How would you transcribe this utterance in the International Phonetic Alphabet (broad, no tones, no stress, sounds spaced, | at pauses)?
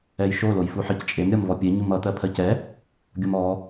ɛ j ʃ o l o j f u ħ ɜ c t͡ʃʼ e m ɾʲ ʌ m v ɔ pʲ e ɲ u m ʌ t̪ ɜ pʰ ɜ c ɛ | ɡʲ ʌ m ɔ